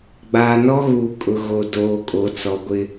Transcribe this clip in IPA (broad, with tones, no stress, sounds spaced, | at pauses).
ɡ͡b aː˨ n ɔ˦ ɣ uː˨ kʼ ʊ˨ ɣ o˨ d oː˨˦ kʼ o˨ t͡s ɔ˨ ɡʷ ɪ˦